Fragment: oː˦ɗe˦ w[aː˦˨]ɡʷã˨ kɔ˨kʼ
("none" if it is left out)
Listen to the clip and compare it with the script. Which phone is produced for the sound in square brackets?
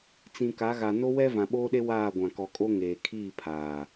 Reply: aː˦˨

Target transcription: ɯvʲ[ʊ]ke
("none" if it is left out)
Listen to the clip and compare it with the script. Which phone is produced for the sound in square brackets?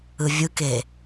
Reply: ɯ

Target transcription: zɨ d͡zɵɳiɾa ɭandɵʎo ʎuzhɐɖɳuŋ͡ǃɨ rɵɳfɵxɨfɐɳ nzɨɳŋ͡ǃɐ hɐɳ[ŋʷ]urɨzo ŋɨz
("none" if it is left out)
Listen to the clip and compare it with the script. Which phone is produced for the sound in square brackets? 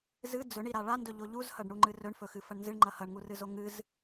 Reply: ŋ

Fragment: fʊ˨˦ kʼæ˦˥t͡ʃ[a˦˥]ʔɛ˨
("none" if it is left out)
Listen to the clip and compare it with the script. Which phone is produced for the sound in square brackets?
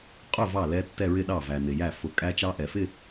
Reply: ɑ˦˥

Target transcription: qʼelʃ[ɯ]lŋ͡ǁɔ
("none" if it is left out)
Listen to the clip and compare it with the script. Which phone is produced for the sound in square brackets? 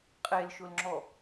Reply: ʊ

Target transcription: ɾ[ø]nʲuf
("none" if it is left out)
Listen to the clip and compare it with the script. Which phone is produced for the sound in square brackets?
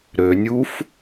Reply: ø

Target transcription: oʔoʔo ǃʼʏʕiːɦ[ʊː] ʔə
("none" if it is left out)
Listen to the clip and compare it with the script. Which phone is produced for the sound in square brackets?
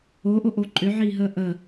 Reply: əː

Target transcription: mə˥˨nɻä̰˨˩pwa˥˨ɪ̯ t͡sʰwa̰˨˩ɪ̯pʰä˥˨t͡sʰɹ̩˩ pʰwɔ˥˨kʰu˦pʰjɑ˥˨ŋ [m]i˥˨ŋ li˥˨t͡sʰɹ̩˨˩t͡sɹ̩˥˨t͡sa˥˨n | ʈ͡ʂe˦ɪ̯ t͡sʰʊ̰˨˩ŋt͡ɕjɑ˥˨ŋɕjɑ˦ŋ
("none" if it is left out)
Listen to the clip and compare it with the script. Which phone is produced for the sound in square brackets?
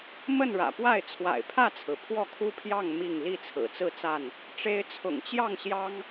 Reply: m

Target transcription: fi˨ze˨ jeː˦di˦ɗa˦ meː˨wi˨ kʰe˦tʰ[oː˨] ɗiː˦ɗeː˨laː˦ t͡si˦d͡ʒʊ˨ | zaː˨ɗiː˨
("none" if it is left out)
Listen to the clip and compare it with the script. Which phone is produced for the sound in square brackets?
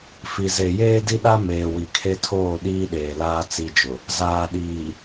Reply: oː˦˨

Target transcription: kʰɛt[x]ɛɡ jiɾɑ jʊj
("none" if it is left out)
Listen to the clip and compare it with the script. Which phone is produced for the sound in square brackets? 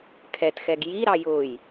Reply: x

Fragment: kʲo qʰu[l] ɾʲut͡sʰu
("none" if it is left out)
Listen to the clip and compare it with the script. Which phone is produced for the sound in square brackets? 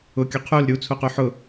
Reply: l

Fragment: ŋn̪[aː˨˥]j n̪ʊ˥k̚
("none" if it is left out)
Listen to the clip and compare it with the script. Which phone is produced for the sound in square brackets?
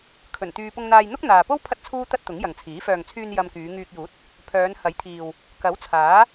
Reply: aː˧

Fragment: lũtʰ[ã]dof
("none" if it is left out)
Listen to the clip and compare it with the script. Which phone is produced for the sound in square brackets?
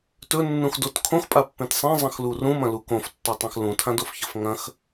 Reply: ã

